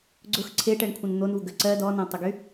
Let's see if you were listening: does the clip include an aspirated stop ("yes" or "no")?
yes